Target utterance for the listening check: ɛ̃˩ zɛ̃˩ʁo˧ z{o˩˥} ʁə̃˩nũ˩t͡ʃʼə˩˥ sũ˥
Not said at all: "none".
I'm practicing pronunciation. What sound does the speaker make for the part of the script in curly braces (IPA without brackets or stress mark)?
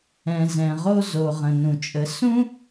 o˩